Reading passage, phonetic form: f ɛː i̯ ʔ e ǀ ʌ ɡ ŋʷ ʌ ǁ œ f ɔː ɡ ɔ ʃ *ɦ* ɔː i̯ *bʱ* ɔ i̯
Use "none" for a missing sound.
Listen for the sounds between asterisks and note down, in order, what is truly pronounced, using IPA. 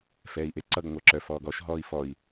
ɦ, f

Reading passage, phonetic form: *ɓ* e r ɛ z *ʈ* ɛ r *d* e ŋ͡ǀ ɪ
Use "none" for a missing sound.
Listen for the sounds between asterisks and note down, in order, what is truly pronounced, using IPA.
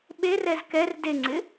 ɓ, k, d

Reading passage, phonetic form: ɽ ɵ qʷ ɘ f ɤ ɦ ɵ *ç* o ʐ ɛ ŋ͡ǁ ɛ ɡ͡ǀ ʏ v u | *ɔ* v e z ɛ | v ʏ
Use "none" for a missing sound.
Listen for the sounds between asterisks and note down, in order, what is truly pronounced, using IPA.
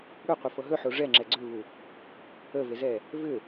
ħ, ə

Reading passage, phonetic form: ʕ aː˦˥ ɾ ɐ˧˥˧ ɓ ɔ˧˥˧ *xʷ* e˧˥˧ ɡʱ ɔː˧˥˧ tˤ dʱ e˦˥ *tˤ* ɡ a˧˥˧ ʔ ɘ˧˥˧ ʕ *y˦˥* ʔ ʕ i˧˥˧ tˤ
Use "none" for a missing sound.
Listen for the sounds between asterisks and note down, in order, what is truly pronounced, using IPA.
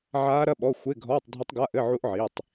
xʷ, tˤ, u˦˥

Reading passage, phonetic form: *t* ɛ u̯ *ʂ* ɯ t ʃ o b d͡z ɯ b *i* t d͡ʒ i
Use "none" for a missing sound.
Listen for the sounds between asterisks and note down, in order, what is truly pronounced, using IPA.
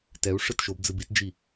t, ʂ, i

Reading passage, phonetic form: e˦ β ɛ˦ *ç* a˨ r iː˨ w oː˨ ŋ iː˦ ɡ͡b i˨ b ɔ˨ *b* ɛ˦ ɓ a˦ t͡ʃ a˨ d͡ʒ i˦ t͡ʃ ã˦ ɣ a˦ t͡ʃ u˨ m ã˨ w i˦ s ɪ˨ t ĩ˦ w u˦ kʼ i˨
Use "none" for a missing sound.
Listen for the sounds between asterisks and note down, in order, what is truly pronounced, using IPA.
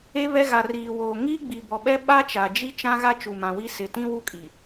ɣ, ɓ

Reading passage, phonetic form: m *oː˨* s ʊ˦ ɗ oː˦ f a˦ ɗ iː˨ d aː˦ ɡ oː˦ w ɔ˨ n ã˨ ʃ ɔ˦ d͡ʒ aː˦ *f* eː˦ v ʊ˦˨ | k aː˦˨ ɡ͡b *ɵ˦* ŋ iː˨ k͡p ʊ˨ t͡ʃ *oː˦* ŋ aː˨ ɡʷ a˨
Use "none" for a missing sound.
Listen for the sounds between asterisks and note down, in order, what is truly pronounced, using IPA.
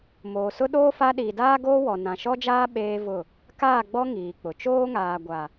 oː˨, ɓ, ɔ˦, oː˦

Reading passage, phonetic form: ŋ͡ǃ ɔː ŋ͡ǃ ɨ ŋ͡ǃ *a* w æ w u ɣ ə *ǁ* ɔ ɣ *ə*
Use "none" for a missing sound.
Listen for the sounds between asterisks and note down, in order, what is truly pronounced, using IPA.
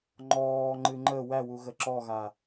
ə, ǁ, a

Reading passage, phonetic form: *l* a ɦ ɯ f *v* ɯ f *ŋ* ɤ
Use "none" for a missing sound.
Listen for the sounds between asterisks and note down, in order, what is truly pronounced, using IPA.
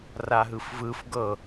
r, v, ɡ

